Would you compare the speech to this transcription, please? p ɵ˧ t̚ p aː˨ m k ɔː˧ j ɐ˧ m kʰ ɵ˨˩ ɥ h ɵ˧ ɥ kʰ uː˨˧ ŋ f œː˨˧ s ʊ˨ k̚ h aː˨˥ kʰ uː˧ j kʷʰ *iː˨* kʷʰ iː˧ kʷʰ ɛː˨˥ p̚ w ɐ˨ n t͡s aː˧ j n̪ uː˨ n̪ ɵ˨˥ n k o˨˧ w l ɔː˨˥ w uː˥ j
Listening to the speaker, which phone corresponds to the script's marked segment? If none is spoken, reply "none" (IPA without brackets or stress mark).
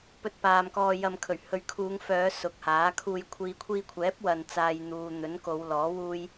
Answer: iː˨